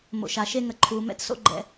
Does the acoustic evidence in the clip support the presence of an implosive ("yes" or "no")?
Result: no